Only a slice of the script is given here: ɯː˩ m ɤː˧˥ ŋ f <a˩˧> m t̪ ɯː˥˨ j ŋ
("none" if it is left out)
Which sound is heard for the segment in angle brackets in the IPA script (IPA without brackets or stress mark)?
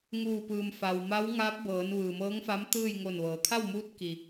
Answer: a˧˥